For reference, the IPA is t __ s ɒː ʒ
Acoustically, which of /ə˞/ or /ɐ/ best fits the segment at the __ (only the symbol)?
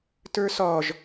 ə˞